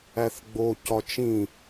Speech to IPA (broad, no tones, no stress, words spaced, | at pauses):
æθɡ͡bo cɒt͡ʃĩ